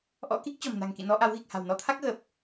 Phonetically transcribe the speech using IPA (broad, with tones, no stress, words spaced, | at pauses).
ʔɔ̰˧˥ki˦˥k̚ t͡ɕɔ̤˨˩mna̤˨˩ŋkḭ˧˨nɔ˧ ʔa˨˦wɣi˨˩k̚ha̤˨˩w nɔ˧t̪ʰa˦˥k̚ ɣə˨˩p̚